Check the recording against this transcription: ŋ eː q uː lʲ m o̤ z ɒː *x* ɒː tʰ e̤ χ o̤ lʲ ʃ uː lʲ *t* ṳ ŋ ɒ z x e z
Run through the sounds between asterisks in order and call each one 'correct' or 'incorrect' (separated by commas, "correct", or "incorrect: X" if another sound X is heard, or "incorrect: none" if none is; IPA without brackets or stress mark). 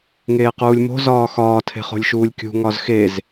correct, incorrect: kʲ